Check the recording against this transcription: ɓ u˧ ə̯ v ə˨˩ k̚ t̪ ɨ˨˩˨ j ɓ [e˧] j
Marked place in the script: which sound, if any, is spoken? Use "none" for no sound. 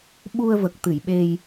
e˧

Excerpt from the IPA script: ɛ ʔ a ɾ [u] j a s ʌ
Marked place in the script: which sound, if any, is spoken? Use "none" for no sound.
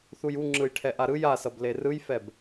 ɯ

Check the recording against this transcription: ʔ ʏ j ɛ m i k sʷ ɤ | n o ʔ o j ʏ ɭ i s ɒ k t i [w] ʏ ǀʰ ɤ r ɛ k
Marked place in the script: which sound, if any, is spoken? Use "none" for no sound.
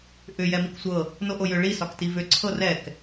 v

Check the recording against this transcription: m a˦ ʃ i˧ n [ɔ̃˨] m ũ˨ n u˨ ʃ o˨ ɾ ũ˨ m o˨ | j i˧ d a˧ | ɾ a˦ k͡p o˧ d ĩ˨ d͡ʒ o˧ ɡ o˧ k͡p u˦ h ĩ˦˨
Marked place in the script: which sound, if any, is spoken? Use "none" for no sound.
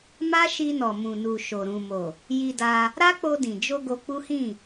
ɔ˨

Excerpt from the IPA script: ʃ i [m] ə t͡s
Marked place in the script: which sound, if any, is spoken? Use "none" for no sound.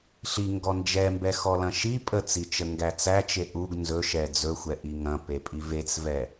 pʼ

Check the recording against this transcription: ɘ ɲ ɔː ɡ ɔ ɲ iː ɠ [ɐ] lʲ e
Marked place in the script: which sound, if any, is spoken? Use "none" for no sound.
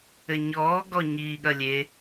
ɐ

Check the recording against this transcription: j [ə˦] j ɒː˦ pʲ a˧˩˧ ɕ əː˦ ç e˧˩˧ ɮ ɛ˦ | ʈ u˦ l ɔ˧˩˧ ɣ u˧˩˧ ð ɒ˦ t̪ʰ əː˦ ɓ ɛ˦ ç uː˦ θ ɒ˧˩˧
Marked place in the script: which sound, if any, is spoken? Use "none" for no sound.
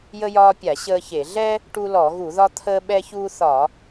ə˦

